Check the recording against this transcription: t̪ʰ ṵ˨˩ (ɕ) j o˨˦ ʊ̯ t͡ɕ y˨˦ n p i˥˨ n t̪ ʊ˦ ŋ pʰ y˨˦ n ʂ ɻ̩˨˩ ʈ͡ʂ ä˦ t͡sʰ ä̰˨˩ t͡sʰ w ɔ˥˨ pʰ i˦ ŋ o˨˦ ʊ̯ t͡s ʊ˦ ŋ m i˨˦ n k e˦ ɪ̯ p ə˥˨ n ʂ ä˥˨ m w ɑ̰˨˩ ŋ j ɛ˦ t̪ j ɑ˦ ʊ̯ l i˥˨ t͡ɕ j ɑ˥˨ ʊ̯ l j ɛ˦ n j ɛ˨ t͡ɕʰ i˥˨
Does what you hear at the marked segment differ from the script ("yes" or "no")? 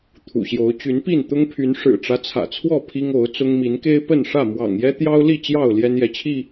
no